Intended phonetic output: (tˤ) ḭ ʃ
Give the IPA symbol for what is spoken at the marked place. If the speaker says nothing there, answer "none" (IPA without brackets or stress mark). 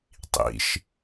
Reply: tˤ